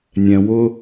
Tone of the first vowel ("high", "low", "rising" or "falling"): low